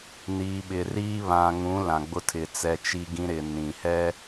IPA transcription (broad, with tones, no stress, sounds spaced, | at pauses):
n iː˨ ɓ ɪ˨ r iː˦ β ã˨ ŋ ũ˨˦ l ã˨ ɡ͡b ʊ˦ tʰ ɪ˨ t͡s ɛ˦ t͡ʃ i˦ ɡ ĩ˦ ɾ ɪ˨ n ĩ˨ h ɛ˦